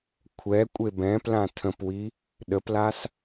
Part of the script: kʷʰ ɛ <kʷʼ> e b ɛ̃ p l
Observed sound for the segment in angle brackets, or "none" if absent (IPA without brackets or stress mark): kʷʼ